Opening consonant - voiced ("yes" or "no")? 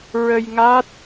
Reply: yes